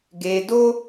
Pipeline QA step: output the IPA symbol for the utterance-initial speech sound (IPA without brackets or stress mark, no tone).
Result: ɡ